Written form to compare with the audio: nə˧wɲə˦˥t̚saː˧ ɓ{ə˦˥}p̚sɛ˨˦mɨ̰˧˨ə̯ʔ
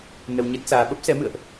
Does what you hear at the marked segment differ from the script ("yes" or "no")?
no